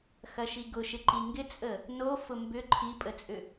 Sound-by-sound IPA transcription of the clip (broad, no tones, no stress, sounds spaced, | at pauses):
x ɐ ʃ i ɡ ʊ ʃ ɪ ǃ i ŋ ɡ ɪ t͡sʼ ə | n o f ʊ m b ʏ ǃʰ i pʼ ə t͡sʼ ʏ